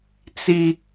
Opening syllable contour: high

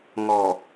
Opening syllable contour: low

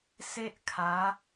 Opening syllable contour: high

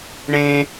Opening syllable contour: high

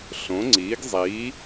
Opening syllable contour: rising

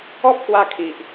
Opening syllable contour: high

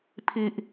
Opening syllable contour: low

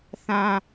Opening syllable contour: low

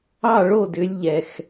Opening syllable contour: falling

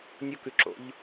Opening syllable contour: high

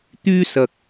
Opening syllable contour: high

